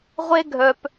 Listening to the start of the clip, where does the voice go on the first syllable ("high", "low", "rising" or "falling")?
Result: high